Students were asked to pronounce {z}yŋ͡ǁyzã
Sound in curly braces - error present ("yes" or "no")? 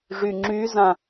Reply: yes